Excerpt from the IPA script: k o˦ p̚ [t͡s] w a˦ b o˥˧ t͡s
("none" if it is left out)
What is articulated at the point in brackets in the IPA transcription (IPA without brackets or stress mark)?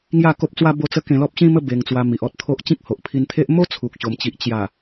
t͡s